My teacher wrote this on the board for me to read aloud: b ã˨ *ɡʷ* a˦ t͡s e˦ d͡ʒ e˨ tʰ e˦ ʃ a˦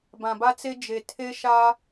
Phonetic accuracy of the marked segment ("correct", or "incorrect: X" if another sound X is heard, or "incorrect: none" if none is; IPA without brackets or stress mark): incorrect: b